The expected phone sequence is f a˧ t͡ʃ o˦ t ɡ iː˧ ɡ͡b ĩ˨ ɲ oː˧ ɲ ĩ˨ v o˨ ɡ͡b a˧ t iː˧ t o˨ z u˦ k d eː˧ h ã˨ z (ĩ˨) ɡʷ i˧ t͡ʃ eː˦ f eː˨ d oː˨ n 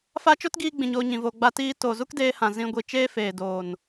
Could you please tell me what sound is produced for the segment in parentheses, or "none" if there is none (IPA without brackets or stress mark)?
ĩ˧